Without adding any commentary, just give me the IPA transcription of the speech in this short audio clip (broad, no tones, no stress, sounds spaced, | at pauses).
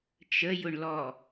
t͡ʃ ə j ʊ ɳ l ɔ